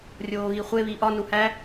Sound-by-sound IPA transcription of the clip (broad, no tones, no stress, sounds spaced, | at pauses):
rʲ oː ɣ i χʷ e β i ʔ ɒ n u h æ